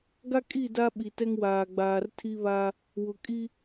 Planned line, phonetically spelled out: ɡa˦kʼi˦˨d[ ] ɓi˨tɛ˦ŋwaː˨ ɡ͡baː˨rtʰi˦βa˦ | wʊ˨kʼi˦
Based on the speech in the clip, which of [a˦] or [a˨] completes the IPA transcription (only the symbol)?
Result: a˦